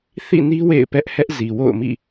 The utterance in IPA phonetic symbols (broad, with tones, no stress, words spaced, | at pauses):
θḭ˦˨ni˦ wḛ˦˨ɪ̯pɛ˦ʔ hɛ˦ʔ zi˨ wo̰˦˨ʊ̯mḭ˦˨